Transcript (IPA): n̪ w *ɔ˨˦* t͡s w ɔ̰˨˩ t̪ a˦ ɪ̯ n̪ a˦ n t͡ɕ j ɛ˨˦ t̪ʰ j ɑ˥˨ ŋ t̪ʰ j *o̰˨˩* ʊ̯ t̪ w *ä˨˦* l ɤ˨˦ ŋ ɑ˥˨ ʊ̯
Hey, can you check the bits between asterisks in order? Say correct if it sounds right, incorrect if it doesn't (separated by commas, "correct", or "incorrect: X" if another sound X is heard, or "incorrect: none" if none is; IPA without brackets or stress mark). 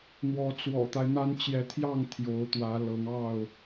correct, incorrect: o˨˦, correct